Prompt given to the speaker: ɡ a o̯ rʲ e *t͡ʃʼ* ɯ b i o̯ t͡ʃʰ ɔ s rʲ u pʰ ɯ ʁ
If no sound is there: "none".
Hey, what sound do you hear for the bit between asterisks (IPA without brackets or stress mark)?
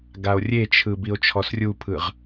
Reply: t͡ʃʰ